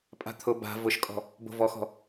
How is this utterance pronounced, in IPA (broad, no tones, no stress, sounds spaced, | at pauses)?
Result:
pʼ a̤ t̪ʰ ʊ b a̤ v ʊ ʃ kʼ ɔ̤ | b o̤ v ɔ x ɔ̤